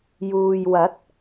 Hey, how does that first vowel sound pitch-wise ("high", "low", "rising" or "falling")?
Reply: low